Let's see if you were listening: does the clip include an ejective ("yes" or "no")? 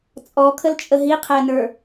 yes